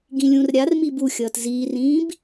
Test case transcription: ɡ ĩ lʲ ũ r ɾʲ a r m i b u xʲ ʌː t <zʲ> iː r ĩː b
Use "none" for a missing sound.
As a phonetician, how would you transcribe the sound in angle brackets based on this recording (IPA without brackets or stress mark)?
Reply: z